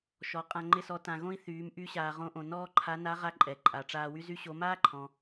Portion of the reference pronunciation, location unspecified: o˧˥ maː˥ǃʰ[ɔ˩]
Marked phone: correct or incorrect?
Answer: incorrect